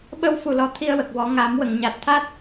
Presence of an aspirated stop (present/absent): present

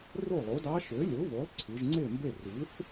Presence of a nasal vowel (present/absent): absent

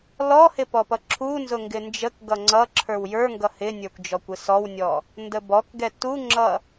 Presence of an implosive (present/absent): absent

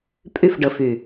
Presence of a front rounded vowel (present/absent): present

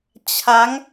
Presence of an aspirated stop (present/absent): present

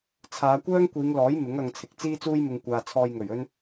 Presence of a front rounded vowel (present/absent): present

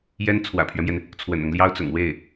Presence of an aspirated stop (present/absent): present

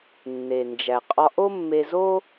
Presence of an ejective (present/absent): present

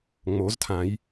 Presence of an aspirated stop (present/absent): present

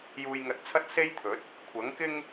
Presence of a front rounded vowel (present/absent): absent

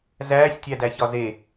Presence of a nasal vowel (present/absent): absent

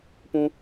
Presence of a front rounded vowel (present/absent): absent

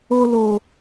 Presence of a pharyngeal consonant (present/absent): absent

